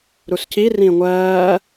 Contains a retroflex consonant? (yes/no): no